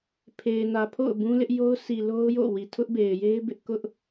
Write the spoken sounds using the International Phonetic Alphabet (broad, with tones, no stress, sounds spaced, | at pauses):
pʰ e˨ ɪ̯ n ä˨ pʰ o̰˦˨ ʊ̯ b ũ˦ l ɪ˦ ʔ j o˦ ʊ̯ s i˨ l o˦ ʊ̯ j o̰˦˨ w i˨ tʰ ʊ˦ ʔ b e˨ ɪ̯ j e˦ ɪ̯ b ɪ˦ ʔ k ʊ˦ ʔ